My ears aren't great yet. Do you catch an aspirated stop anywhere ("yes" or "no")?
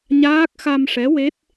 no